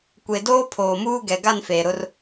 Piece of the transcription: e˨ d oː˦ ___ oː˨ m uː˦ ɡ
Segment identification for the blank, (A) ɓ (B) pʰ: B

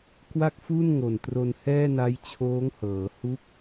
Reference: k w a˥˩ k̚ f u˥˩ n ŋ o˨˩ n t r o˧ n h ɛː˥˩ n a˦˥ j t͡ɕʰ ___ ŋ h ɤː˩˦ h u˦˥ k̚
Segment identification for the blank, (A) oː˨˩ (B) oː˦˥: B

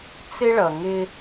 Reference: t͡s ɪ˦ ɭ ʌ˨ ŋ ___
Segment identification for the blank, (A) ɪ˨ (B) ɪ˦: B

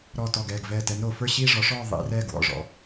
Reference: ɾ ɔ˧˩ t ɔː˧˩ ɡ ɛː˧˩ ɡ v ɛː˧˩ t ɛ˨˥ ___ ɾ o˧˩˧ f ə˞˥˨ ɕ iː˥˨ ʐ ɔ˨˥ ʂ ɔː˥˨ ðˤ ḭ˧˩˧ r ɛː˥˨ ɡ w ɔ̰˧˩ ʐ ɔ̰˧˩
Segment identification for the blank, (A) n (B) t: A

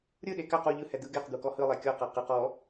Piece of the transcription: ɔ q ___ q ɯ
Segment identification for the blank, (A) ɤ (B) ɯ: A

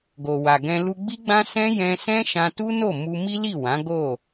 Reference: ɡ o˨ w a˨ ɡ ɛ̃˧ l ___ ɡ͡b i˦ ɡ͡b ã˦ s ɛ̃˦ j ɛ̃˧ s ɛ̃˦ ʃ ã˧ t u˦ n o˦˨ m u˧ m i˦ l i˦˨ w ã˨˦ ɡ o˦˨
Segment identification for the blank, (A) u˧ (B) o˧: A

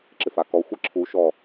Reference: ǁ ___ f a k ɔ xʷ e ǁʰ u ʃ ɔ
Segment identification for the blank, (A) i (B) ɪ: B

